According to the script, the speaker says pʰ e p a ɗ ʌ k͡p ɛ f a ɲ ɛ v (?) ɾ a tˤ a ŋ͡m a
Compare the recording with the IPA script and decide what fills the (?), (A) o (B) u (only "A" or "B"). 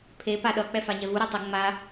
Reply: B